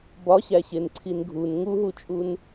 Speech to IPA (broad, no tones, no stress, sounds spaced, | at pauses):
b ɒ ɕ æ ɕ e n ǀʰ i n ɡʱ u n ŋ u ɦ u t͡ʃʼ u n